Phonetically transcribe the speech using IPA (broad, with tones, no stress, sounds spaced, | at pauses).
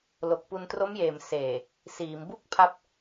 l o˨˩ k̚ p u˧ n t r o˦˥ m j eː˨˩ m s eː˨˩ | s iː˩˦ m b u˥˩ k̚ pʰ a˦˥ p̚